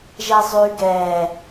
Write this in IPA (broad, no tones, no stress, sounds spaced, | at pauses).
ʒ ɛ zˤ y ɡ ɛ